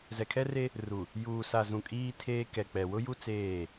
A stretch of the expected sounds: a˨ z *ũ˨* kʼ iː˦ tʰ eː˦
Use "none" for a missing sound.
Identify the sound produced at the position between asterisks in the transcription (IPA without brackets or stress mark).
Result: ũ˨